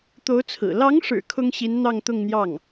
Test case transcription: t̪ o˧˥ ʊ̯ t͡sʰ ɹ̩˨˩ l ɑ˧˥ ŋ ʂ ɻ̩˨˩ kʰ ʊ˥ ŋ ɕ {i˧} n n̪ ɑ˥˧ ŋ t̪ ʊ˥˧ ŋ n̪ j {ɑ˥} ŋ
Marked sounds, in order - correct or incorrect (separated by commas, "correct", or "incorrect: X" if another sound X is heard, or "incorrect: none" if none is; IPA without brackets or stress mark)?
incorrect: i˧˥, incorrect: ɑ˥˩